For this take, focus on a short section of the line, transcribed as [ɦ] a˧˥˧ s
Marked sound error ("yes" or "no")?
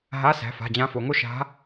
no